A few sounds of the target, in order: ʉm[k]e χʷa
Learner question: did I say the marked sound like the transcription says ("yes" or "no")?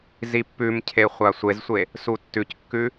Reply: no